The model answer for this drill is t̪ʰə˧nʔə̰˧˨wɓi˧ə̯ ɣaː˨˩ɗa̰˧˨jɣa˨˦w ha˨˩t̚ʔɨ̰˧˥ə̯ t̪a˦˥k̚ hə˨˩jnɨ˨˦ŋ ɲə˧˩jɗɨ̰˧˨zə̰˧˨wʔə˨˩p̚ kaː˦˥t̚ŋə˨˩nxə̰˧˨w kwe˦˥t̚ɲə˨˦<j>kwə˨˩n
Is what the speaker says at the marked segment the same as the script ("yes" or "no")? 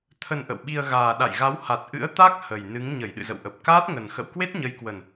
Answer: yes